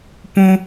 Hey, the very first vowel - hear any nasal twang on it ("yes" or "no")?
yes